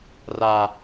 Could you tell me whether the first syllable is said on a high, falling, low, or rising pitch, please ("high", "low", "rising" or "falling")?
low